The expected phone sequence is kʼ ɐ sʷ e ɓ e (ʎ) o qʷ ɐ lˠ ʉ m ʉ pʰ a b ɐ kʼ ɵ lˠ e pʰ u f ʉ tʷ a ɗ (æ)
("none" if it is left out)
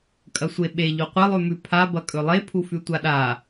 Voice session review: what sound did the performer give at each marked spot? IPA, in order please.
ʎ, a

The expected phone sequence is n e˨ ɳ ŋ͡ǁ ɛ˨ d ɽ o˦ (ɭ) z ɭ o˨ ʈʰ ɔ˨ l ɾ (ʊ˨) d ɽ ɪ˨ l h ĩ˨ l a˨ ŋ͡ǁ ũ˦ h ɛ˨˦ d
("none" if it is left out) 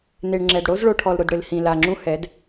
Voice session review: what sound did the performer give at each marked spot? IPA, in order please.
none, ʊ˨

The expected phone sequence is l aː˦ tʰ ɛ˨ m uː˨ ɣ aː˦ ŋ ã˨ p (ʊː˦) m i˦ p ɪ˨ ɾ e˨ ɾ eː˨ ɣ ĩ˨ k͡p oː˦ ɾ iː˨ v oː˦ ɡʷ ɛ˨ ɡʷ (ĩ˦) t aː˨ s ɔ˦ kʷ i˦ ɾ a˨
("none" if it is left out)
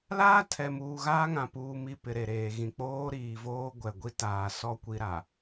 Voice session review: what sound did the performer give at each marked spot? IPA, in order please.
uː˦, i˦

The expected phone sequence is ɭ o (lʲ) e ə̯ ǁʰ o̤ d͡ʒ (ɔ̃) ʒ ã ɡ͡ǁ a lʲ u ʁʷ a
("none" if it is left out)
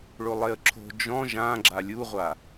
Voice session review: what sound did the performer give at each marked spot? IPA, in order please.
lˠ, ɔ̃

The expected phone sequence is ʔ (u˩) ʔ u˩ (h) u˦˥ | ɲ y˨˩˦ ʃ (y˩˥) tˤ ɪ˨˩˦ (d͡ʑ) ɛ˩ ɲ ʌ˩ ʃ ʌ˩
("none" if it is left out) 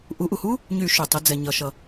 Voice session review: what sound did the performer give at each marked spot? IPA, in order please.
u˩˥, h, y˩, d͡z

